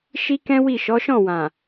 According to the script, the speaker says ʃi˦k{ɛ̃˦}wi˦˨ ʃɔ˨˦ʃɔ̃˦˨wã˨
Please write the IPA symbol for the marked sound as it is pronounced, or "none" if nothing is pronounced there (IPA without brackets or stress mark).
ɛ̃˦